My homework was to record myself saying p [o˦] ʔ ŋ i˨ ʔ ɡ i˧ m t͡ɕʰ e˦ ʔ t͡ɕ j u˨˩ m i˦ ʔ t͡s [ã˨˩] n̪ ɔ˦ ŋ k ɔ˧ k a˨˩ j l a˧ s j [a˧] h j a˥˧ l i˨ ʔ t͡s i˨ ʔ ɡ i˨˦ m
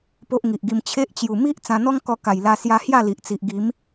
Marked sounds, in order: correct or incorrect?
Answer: correct, incorrect, correct

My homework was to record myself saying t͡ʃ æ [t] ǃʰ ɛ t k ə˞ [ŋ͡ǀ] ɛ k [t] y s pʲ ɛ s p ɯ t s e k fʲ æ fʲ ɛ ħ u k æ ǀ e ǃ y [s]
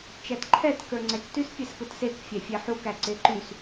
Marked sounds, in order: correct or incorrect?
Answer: correct, correct, correct, correct

